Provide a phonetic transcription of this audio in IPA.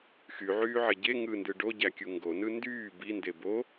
x y ʕ yː ʕ e ɟ e ŋ ɯ n d ɯ ɖ o ɟ æ kʲ u ŋ ɡ o n ɯ n d yː b i n d e b o

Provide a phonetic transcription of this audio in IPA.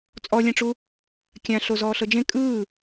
t͡sʼ ɔ lʲ ɛ̃ ʈ͡ʂ u | kʲ ã ɬ o z ɔː ɬ ɤ d͡ʒ ẽ kʼ ɯː

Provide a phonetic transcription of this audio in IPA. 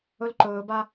ɵ l ǃ ɵː b a

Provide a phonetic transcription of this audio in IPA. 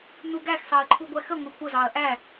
n u ɡ æ x s ɑ ɐ̯ ǃʰ u ɡʷ æ x ə ŋʷ e kʷ ə z ɑ ɐ̯ ʔ æ

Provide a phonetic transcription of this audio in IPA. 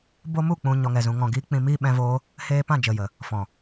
b o˦ m u˦˨ k͡p ũ˨ ɲ ɔ˧ ŋ ɛ˨ z ũ˧ ŋ ɔ̃˨ ɡ iː˦ k͡p ĩ˧ m iː˦ ɓ ɛ̃˧ v oː˦ | h eː˧ p ã˦˨ d͡ʒ ə˨ j ə˨ | f ɔ̃˨

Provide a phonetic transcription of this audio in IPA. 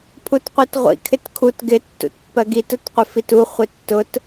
pʰ u t qʷ i t ʁʷ ḭ kʰ ɪ t kʰ u t ɡ ɪ tː ṵ t pː ɜ ɡ i t ʊ t qʷ ɪ f i t u χʷ ɪ tː ʊ t

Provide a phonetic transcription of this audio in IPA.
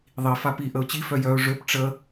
ðˤ i f a p i ʔ ə ʊ̯ t͡ɕ i f œ j œ ʊ̯ ʐ ø p ʈ͡ʂ ə

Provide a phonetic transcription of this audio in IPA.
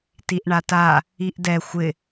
t i ʔ ɳ a t a | i ʔ d ɛ xʷ ɪ

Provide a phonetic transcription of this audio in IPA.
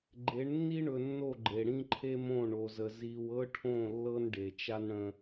ɡ͡ǃ e˨˦ ɳ nː i˦ ɳ ɵ˨ nː o˦˨ ɡ͡ǃ e˨ ɽ ĩ˦ ǃʰ e˦ m õ˦˨ ɳ o˨ z ə˨ z i˨ w ɤ˦ ʈʰ õ˦˨ lː ɤ˦ n ɖ e˨ t͡ʃ a˦ n ɽ ə̃˦

